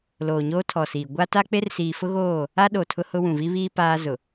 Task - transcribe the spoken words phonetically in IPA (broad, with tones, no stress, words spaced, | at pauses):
loː˨ɲoː˦tʰɔ˨siː˨ ɡʷa˦ta˦ k͡pe˦rsiː˨fʊ˦ɣoː˦˨ | a˦ɗo˨ tʰʊ˦hʊ˦ wũ˨vi˦βiː˦ paː˦ zʊ˨